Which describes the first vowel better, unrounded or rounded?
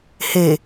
unrounded